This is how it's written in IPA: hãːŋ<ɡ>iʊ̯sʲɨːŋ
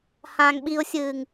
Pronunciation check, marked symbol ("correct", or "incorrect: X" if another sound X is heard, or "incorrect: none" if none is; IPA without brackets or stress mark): incorrect: ɓ